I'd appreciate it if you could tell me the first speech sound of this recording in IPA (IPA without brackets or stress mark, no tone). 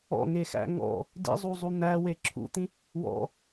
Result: ɔ̰